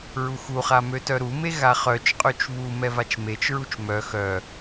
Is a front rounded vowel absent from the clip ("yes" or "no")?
no